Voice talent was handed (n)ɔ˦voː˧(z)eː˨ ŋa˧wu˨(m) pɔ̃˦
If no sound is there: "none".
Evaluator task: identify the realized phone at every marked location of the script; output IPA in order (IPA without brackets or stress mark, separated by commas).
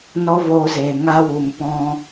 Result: n, z, m